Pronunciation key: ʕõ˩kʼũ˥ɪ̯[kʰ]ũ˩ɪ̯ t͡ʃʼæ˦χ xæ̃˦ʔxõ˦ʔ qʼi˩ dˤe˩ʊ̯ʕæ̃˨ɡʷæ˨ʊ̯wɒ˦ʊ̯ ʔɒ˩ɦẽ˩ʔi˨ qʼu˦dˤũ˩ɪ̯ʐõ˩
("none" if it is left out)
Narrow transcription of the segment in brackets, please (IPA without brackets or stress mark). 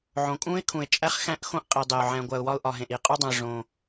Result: kʰ